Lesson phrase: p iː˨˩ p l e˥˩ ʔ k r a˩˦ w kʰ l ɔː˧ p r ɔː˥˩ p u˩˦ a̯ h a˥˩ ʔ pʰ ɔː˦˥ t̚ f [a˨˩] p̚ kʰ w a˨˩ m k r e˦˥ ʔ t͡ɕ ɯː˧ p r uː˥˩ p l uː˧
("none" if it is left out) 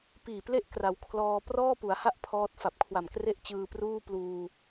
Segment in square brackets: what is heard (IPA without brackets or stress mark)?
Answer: a˨˩